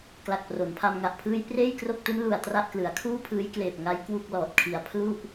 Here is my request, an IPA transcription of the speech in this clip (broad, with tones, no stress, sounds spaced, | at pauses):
k l a˨˩ k̚ p r o˩˦ n pʰ a˧ m ŋ a˨˩ ʔ pʰ ɯː˦˥ j p r eː˥˩ j k r o˥˩ k̚ t u˦˥ n l u˨˩ a̯ t r a˥˩ ʔ k l ɯ˩˦ a̯ kʰ uː˥˩ pʰ ɯː˦˥ j k l eː˨˩ p̚ ŋ a˦˥ j k w u˥˩ k̚ l ɔː˨˩ t̚ kʰ i˨˩ a̯ pʰ l u˥˩ ʔ